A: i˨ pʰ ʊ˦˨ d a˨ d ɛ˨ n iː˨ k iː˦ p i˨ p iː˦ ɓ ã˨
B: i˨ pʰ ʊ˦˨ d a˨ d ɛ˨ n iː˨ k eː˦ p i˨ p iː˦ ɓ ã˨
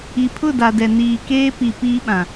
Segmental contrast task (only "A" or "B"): B